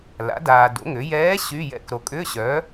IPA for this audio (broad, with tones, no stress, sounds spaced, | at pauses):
l a̰˩˥ d aː˨ d o̰˩˥ ŋ ʏ˩˥ j ɛː˧˥ ɕ yː˧˥˧ j ɛ̰˧˥ k ɾ o˨ kʼ ʏː˧˥˧ ɕ œ˩˥